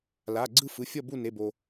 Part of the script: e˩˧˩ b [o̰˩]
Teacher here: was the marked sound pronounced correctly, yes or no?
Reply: no